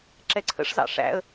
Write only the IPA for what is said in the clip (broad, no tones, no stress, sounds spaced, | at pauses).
ǁ ɛ ǀʰ ə̰ ʂ z ɑ̰ ʂ æ̰ ə̯